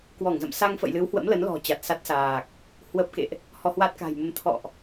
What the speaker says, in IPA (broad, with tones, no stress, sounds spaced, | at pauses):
k w ɔ˧˩ ŋ z ə̰˧˨ m s a˧ ŋ f ə̰˧˨ j l ɨ˨˦ w h w ə̰˧˥ m l ə˨˦ n l ɔ̤˨˩ t͡ɕ a˨˩ t̚ s a˦˥ t̚ s aː˨˩ k̚ | h w ə˦˥ p̚ k ḛ˧˨ ʔ | h ɔ˧ h w a˦˥ t̚ k a̤˨˩ j m ə˧ m t̪ʰ ɔ̰˧˨ ʔ